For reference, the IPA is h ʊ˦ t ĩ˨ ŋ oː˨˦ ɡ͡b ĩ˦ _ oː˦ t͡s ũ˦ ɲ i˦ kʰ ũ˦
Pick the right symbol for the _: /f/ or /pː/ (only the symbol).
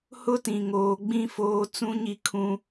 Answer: f